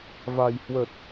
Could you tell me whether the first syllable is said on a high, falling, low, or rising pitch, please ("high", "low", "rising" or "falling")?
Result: low